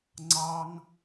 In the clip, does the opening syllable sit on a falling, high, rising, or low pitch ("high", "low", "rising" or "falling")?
high